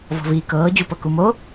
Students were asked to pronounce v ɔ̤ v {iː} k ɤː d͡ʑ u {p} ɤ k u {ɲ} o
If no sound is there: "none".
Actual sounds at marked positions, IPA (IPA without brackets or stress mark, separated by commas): iː, p, m